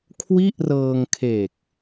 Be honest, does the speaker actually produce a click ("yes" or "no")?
no